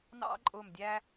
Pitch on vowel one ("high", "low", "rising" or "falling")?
high